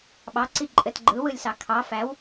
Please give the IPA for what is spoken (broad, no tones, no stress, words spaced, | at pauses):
ɓɑǀi ǃʼɘtɡ͡ǃɯwɯlʲsɑ kʰɑ fæw